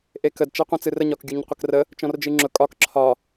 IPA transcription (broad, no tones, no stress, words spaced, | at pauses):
ʔekəd t͡ʃɛqʷɛ̃t͡sɨrə ɲɒkɡʲuɲqʷəkrə | t͡ʃɔ̃rd͡ʒɨŋ͡ǁʊ kʼɒk ǁʰɒ